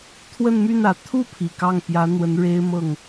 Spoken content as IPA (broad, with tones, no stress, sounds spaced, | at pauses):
t̪ʰ w ə˥˧ n m y˥˩ n ä˨˩ t̪ʰ u˥˩ pʰ i˨˩ k ɑ˥˩ ŋ p j ä˧˥ n̪ w ə˧˥ n ɻ e˥ ɪ̯ m ɤ˥˩ ŋ